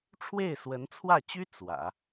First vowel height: mid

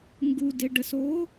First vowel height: high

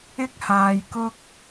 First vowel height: high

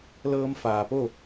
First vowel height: mid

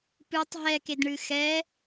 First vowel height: high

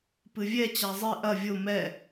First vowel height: high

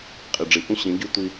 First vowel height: high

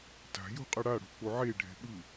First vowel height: low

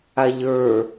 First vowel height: low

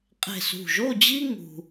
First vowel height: mid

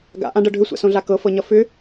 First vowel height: low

